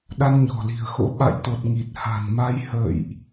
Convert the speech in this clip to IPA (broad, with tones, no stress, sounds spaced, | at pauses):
ɗ a˧ n ɲ ɔ̤˨˩ l i̤˨˩ ə̯ x o̰˧˥ ɓ a̰˧˨ j t̪ o˨˩ t̚ ŋ i˨˩ t̚ h a̤˨˩ n m a˧ j h ə̰ː˧˨ j ʔ